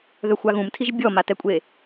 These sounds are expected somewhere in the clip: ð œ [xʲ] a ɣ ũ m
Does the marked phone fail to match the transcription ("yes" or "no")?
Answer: yes